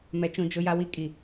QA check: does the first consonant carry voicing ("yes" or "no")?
yes